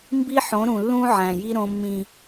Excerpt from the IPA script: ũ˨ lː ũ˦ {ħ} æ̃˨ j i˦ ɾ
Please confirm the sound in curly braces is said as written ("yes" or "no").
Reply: no